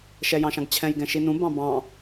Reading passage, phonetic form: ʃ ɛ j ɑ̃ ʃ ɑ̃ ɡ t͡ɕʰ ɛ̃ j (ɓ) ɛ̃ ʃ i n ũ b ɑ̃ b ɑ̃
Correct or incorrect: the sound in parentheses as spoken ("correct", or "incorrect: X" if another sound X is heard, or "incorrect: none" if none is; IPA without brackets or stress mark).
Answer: incorrect: ɡ